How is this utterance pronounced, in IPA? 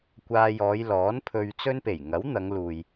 kʷ aː˧ j ɔː˨˧ j l ɔː˨˥ n pʰ ɵ˧ ɥ t͡s ɵ˥ n p e˨˩ j ŋ ɐ˨˥ w n̪ ɐ˨˧ ŋ l uː˨ j

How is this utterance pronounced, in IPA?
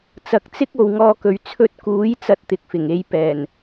t͡s ɐ˨ k̚ t͡s ɪ˥ k̚ o˨ w ŋ ɔː˧ k ɵ˨ ɥ t͡sʰ ɵ˧ t̚ k uː˨˥ j t͡s ɐ˥ t̚ t̪ ɪ˨ k̚ f ɪ˨˩ ŋ e˨˧ j p ɛː˨˩ n

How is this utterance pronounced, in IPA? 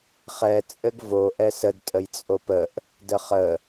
χ ɛ t͡sʼ ɘ ɡ v o ʔ ɛ s ə d tʼ ə j t͡sʼ o p ə ʔ | d ə χ ə

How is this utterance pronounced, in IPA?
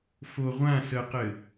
f o ʁʷ ã s ə q ɘ

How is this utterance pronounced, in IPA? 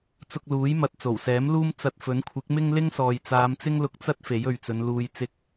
t͡s ʊ˧ k̚ l uː˨˥ j m ɐ˨ t̚ t͡s o˨˩ w s ɛː˨˥ m l uː˥ m t͡s ɐ˧ t̚ f ɵ˨˥ n kʷʰ ɪ˨˥ k̚ m ɪ˥ ŋ l ɪ˥ ŋ s ɔː˨ j t͡s aː˨˧ m t͡s ɪ˥ ŋ l ʊ˧ k̚ t͡s ɐ˥ t̚ f e˨˥ j ɵ˨ ɥ t͡s ɵ˨˧ n l uː˨ j t͡s ɪ˨˥ k̚

